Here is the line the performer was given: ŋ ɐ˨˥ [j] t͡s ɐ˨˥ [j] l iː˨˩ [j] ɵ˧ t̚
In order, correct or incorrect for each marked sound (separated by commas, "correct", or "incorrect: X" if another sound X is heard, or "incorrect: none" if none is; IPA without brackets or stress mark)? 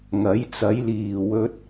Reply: correct, correct, incorrect: w